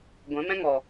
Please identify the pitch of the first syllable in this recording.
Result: rising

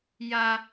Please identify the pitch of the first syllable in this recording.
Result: high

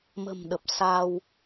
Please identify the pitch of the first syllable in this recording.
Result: low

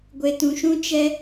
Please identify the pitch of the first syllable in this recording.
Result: low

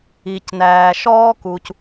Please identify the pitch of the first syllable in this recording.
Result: low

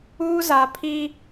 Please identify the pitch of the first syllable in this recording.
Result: high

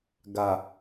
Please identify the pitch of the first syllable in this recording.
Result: low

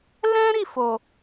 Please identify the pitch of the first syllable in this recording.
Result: high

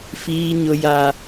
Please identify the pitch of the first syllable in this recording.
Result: high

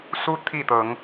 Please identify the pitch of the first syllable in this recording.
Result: high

